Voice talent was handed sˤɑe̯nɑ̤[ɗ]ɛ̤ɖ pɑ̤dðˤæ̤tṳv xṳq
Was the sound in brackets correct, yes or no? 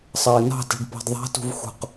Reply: no